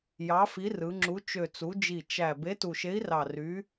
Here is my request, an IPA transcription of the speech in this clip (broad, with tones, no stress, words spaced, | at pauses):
jɑ˨˥fi˨˥rɯ˩˧ŋ͡ǁu˨˥ t͡ʃø˨˩t͡su˩˧d͡ʒi˨˩ t͡ʃæ˨˩ be˨˥tu˨˩ʃe˨˥i̯rɑ˨˩ ry˨˥